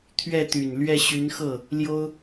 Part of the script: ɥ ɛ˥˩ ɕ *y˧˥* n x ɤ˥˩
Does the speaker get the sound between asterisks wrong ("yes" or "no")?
no